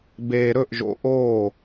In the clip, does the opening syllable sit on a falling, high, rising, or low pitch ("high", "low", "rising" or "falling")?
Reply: low